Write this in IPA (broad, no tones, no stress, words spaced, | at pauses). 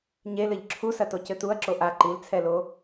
ɲelɘʎ ǁʰusɐtocɘ tuɐ̯ǁo ʔa ǃilt͡sʰɛlo